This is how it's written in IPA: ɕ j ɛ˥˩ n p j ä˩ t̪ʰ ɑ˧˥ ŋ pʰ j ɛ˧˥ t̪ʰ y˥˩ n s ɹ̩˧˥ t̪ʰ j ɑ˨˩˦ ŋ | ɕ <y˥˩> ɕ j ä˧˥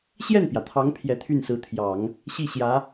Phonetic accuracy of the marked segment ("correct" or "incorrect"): incorrect